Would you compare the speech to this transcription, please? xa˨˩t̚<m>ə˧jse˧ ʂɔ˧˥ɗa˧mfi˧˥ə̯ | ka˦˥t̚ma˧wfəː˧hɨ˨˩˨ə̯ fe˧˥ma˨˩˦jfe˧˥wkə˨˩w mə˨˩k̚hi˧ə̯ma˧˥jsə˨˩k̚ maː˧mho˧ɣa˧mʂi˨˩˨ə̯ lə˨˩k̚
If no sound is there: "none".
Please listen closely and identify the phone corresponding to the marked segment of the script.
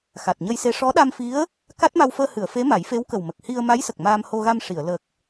ɲ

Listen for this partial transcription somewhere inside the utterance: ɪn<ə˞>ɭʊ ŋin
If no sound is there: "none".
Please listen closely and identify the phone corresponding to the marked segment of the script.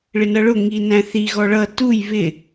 ʌ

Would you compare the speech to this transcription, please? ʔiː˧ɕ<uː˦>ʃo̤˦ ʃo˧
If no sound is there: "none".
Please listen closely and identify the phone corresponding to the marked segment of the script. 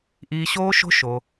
oː˦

